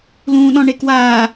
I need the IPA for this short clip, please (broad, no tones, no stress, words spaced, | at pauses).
lũːɗɔ̃ɳekwaː